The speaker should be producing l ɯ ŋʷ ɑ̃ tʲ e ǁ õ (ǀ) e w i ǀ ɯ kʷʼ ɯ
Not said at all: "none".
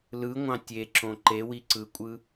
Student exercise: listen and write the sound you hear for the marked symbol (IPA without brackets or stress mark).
ǃ